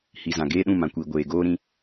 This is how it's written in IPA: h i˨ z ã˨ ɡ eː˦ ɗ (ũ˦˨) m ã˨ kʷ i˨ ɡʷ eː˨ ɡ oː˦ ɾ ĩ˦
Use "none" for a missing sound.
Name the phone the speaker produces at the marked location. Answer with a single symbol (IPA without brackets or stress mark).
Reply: ũ˦˨